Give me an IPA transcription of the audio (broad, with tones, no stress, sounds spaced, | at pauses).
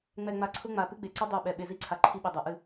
ŋ͡m ɛ˨ ŋ͡m a˨ ǀʰ ʊ˦ ŋ͡m a˨ p ɨ˦ ɡ͡b e˨ ǀ i˦ dˤ ɛ˦˨ ɓ ɛ˨ ɓ e˨ z i˦˨ ǀʰ a˨ ǃʰ i˦ ɓ e˨ dˤ a˨ ʔ ɨ˦˨